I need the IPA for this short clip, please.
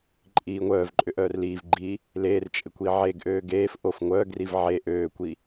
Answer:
ǃʼ iː ŋʷ œː v ǃʼ ʏ ʔ œː r l iː v ɡ͡ǃ iː | l eː r t͡ʃʼ ɪ kʷ i ʕ e ɡ ʔ øː ɡ eː f ʔ o f ŋʷ œː ɡ r i v ʕ e ʔ øː kʷ i

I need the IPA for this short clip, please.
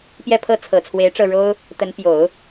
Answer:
p j ɛ˥˧ pʰ ɤ˥˩ t͡sʰ ɤ˨˩ t͡sʰ w e˧˥ ɪ̯ ʈ͡ʂ ɤ˥˩ ɻ o˥ ʊ̯ | t̪ ə˧˥ n p j o˨˩˦ ʊ̯

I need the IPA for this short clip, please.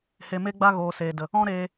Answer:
h e˨ m e˦ ɡ͡b a˦ ɣ oː˨ s eː˨ d ə˨ | ɔ̃˦ ɾ eː˧

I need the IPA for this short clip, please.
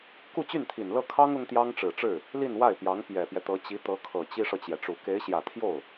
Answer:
k u˥˧ t͡ɕ y˥˩ n t̪ʰ i˨˩ n l ɤ˥˩ kʰ ɑ˥ ŋ ʊ˥ ŋ t̪ j ɑ˥ ŋ ʈ͡ʂ ɻ̩˨˩ ʈ͡ʂ ɻ̩˥˩ | l i˥˧ n w a˥˩ ɪ̯ p j ɑ˧˥ ŋ p j ɛ˨˩ p j ɛ˦ t̪ ɤ˧˥ t͡ɕ i˧˥ t̪ ɤ˧˥ kʰ ɤ˨˩ t͡ɕ i˥ ʂ ɤ˨ t͡ɕ j ɛ˩ ʈ͡ʂ u˨˩ k e˧˥ ɪ̯ ɕ j ä˨˩ t̪ʰ j o˥˩ ʊ̯

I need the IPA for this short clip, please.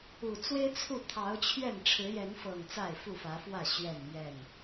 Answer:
u˨˩ t͡s w e˦ ɪ̯ t͡sʰ u˥˨ t̪ʰ ɑ˨˦ ʊ̯ t͡ɕʰ ɥ ɛ˥˨ n ʈ͡ʂʰ ɻ̩˨˦ j ɛ˨˦ n f ɤ˨˩ ŋ t͡s a˥˨ ɪ̯ f u˥˨ f ä˨˦ f w ä˥˨ ɕ ɥ ɛ˥˨ n m ɥ ɛ˥˨ n

